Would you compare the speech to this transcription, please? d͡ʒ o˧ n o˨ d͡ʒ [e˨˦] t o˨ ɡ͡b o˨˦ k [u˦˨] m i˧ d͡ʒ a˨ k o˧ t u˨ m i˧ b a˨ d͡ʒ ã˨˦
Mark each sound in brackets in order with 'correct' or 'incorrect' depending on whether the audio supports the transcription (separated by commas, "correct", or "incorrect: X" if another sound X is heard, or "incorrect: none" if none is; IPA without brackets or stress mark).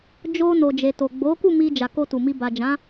incorrect: e˨, correct